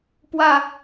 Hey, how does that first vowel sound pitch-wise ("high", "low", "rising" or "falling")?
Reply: falling